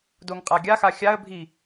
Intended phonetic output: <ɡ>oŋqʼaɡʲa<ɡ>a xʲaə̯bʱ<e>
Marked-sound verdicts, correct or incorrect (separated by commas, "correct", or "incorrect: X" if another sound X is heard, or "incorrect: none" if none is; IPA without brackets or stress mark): incorrect: d, incorrect: x, incorrect: i